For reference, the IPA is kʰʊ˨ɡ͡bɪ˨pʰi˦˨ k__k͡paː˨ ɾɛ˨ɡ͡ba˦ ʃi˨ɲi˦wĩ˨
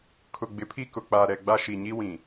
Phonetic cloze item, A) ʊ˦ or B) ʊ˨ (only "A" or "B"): B